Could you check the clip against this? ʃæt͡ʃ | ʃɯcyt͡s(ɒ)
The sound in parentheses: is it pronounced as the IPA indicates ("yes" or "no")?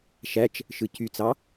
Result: no